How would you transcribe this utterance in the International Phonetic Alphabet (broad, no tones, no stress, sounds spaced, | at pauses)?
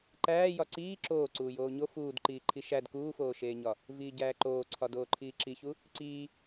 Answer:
ǃ æː j ɒ ǀ iː ǁ oː ǀ uː j oː ɲ o f uː d ǃ iː ǃʰ i ʃ æ d k uː f oː ʃ eː ɲ ɒ | v iː ɟ æː ǃ oː ǀʰ ɒ d oː ǃʰ iː ǁ i ç u | ǀ iː